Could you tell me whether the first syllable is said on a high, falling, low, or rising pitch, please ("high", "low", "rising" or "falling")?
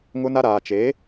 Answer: high